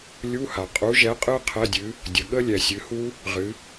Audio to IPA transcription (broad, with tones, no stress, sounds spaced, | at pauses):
lʲ u˧˥˧ h a˩ qʼ u˨˥ ʒ ɛ˨˥ qʼ ɨ˦˥ qʰ ɛ˧˥˧ dʲ ɨ˨˥ | dʲ ə˩ ɠ ə˦˥ lʲ ɛ˩ sʲ ɨ˩˧ h u˦˥ | ʁ ɨ˩˧